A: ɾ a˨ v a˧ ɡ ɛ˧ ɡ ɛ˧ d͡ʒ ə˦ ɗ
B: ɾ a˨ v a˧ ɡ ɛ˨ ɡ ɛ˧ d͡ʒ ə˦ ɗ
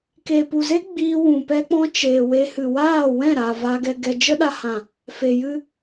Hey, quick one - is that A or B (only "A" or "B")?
A